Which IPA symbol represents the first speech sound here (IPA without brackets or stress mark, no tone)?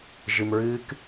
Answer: ʒ